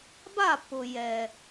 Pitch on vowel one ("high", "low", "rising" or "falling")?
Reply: falling